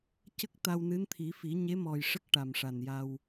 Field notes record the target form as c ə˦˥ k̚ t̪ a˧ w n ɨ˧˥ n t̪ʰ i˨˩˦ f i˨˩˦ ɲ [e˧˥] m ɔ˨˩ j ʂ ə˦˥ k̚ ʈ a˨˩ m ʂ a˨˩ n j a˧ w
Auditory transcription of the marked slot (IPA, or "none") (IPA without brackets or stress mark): e˧˥